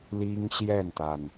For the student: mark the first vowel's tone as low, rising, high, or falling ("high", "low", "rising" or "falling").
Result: high